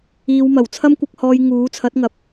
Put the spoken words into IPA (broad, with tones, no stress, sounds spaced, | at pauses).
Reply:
iː˨˧ w m ɐ˨˩ w t͡sʰ ɐ˥ m kʷ ɐ˧ k̚ h ɔː˧ j ŋ uː˨˥ t͡sʰ ɐ˨˥ t̚ ŋ ɐ˨˥ p̚